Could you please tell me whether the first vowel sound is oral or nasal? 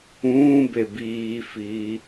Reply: nasal